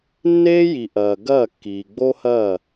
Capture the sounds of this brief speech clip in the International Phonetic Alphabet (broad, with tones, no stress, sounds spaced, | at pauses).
nː eː˦ j i˨ ʔ ɐː˨ ɡ ɐː˦˨ kː iː˨ ɡ͡b o˦ h ɐː˦˨